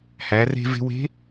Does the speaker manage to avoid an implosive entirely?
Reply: yes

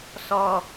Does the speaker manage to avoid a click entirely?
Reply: yes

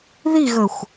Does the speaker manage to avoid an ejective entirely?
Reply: yes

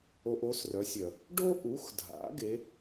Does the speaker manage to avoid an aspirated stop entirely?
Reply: yes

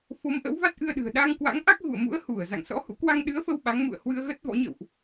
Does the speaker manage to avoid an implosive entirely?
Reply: no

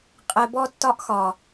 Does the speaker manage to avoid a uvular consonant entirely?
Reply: no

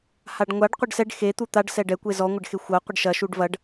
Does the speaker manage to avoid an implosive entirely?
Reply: yes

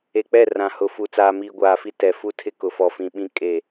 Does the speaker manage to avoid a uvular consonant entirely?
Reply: yes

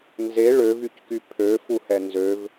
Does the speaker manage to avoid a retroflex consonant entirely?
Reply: no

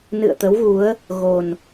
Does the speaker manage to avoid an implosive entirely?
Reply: yes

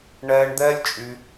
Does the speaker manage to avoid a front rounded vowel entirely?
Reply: no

